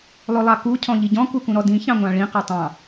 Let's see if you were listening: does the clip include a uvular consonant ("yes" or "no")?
yes